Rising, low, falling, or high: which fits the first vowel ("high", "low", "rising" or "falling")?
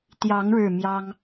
rising